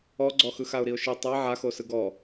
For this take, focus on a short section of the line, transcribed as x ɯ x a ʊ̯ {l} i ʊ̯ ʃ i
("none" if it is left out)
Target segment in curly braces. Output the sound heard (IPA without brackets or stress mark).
ɾ